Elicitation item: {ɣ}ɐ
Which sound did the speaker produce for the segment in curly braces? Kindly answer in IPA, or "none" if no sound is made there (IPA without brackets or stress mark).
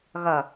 ɣ